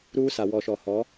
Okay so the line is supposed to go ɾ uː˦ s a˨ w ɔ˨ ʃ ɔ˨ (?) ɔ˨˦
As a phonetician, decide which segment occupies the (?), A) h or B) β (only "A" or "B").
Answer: A